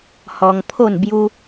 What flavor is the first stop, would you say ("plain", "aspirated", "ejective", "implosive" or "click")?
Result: aspirated